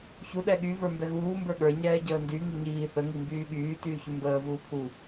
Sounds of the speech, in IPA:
çu ɗɛɠy və˞mbɛɣuː mbə˞ɠə˞ ɲɛːɟəːndy ŋiɲiː θə ŋimbyːɠyː tyːçymbəː vuːpʰu

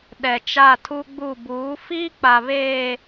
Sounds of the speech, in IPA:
ɗɛ˨t͡ʃa˦˨tʰu˦ɡ͡bu˦˨ buː˨˦ fiː˦k͡pa˨βeː˨

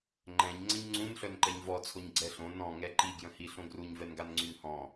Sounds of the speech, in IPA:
ŋ͡ǃɛ̃ɲŋ͡ǀə̃ɲ ŋ͡ǀũn ɬœnǃɛɲvɔt͡sʰoɲ ɡ͡ǀɛɬõ nɔ̃ŋɛ ǃiɡjə̃hi ɬõɡruɲvɛnɡan ŋ͡ǀynhɔ̃

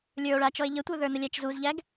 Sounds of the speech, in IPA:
lʲə˞o̯ɭat͡ʃɔe̯ ʎətʷə˞ðə˞nə lʲæt͡ʃzuzʎæɡ

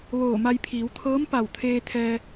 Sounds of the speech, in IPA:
ʋoː˧˩ma˧jpʰiː˩˧w t̪ʰɤː˧˥mpa˧˩wt̪ʰeː˧t̪ʰɛː˧

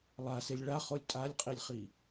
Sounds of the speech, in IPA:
lˠaselʲ ɭaχolʲ tʼalʲqʼilʲχi

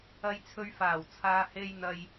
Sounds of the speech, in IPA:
ɐ˨jt͡sʰɵ˨ɥfaː˨˩w t͡sʰaː˨he˧j n̪ɐ˨j

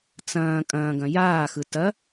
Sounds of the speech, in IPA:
t͡sɐ̃ː kʼɐ̃ːɡɐ̃ jaːxɯ tɐ

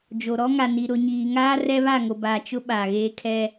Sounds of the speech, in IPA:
d͡ʒo˨ ɾɔ˦ŋa˨ni˨ ɾʊ˨ɲiː˨ŋaː˦ rɛ˦βa˦˨ŋo˨baː˨ t͡ʃʊ˦ɓa˨ ɣeː˦kʰɛ˦

